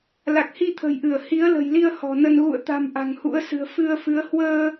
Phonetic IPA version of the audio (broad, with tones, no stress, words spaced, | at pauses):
la˨˩k̚hi˧t̪ʰə̤˨˩jʔɨ˧˩ə̯ hi˨˦ə̯lə̤˨˩jli˧ə̯ hɔ̤˨˩nə˧n ɣṵ˧˨ə̯t̪a̤˨˩m ʔa̤˨˩ŋhṵ˧˥ə̯sɨ̤˨˩ə̯ fɨ˧ə̯ fɨ˨˦ə̯ hwəː˧